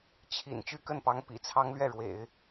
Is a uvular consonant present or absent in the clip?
absent